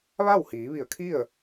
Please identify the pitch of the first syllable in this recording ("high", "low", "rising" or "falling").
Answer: falling